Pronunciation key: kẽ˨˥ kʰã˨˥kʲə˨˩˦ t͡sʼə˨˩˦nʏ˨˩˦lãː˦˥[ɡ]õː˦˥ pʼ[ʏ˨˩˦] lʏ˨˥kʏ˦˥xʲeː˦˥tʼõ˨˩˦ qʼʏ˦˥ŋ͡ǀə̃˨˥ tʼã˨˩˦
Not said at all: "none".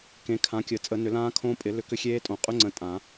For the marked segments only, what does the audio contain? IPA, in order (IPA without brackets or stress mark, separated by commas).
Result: kʰ, ɪ˨˩˦